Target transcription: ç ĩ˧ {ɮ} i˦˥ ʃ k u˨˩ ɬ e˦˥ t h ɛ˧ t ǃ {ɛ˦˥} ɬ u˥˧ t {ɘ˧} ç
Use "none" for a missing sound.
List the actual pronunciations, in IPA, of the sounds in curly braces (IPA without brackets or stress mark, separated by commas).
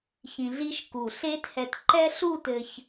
ɮ, ɛ˦˥, ɘ˧